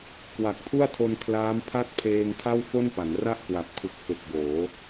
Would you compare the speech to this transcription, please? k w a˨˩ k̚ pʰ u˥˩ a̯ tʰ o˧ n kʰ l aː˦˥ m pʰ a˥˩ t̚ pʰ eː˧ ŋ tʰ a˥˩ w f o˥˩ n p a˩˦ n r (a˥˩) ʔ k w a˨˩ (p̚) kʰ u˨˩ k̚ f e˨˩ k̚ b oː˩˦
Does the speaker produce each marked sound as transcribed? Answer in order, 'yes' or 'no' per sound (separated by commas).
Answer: yes, yes